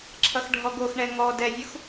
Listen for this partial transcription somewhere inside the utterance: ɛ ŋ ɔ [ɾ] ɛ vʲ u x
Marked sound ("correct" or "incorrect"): incorrect